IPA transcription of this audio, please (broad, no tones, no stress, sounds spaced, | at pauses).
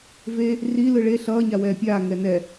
v e | r i l ɯ ɭ e ɬ ʌː ɲ a w ɛː pʲ aː ŋ ɛ n ɛ